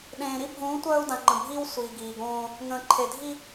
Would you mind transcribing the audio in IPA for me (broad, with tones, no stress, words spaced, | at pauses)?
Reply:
ɗẽː˨ɾi˦bʱũː˨˦ tʷœː˦u̯dã˨ŋ͡ǃə̃˨bʱiː˦w sʷiː˨ ɡiː˨ɡõː˦ | ŋə̃ː˨ǃʰe˨dʱi˦